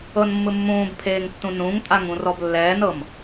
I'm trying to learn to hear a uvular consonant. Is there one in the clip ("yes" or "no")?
no